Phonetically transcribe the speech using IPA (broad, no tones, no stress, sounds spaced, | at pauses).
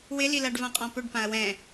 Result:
w ɪ l i l a ɖ v ã qʼ ɔ̃ p ɵ ɖ p ã ɐ̯ w ɛ̃